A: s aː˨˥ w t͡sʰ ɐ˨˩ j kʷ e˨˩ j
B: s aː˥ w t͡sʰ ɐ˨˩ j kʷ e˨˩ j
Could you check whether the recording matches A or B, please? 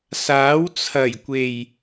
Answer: A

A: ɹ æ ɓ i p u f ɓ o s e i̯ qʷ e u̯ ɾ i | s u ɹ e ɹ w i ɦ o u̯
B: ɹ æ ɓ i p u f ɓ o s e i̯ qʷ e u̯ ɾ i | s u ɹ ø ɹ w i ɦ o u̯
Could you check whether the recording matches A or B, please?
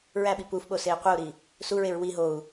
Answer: A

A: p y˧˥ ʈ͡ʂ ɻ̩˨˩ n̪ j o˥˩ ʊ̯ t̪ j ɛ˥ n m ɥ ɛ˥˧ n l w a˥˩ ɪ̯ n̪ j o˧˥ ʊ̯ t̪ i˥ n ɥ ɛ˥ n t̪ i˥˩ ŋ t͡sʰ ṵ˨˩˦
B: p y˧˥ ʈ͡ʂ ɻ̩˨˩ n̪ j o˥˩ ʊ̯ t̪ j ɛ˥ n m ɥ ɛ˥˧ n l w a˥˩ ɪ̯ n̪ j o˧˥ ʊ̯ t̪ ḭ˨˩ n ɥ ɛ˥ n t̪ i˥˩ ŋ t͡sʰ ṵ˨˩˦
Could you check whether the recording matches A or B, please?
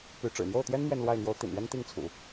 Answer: B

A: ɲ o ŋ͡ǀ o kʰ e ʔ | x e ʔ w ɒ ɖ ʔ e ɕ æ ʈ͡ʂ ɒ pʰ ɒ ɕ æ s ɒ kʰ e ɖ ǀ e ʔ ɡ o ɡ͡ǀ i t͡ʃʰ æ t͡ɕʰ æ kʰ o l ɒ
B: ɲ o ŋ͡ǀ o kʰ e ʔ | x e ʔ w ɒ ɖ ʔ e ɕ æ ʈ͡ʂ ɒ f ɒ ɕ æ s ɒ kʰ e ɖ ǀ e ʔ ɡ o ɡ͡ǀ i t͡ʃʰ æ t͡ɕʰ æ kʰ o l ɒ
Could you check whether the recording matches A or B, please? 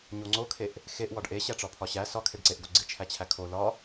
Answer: A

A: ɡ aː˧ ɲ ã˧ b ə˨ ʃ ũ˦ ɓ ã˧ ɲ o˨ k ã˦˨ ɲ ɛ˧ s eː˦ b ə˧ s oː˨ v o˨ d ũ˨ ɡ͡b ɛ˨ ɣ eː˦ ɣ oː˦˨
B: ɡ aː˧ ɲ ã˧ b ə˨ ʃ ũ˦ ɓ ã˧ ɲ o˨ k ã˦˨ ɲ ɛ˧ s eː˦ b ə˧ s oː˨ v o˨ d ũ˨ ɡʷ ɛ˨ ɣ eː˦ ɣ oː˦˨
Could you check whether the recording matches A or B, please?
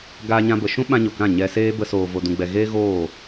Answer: A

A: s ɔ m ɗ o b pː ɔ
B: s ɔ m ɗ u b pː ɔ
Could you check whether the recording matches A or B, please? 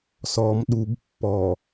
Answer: B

